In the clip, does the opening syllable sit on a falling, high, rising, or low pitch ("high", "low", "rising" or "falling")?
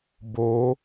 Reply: rising